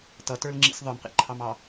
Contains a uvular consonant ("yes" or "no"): yes